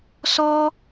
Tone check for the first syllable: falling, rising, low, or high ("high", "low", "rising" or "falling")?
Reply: high